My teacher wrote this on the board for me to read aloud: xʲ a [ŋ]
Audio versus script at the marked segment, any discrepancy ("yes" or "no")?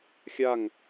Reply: no